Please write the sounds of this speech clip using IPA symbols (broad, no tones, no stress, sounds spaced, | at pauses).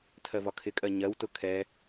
tʰ ɜ v ɒ kʰ ɪ kʼ ɜ ɲ ɜ w t ʊ kʰ ɛ